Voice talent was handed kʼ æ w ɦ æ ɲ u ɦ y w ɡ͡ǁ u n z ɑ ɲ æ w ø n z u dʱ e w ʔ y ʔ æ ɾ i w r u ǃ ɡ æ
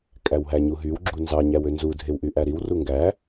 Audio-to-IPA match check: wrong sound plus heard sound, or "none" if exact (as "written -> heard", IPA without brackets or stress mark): ǃ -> ŋ